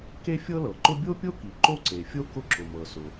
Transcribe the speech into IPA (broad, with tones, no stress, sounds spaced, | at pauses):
k e˥ fʲ ɤ˥ l ɤ˩ ǃ ʊ˥ bʲ o˥ pʲ o˥ k i˩ ǃ o˥ ǀ e˩ fʲ o˥ k ʊ˥ ǁ ʊ˩ m ɤ˩ s ʊ˩